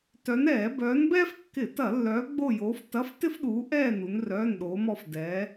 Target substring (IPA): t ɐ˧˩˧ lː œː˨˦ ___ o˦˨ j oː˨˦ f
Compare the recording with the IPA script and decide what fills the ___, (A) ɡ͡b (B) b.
A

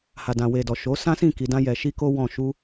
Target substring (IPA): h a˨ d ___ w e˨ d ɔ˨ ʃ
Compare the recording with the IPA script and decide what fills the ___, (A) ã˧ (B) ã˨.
B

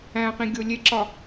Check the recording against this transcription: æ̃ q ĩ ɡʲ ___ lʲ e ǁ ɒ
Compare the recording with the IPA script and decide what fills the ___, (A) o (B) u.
A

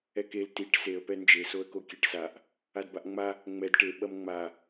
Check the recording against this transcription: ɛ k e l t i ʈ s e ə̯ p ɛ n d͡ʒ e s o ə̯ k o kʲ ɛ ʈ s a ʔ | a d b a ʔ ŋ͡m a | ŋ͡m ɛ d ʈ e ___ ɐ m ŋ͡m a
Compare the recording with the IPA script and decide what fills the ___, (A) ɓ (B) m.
A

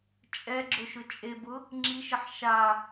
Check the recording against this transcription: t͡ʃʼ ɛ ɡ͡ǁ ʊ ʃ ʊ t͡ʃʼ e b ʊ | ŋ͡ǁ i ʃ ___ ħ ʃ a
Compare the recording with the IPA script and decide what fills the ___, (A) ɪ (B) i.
A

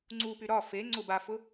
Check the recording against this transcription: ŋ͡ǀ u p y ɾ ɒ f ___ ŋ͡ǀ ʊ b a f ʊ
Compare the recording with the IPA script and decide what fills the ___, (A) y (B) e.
B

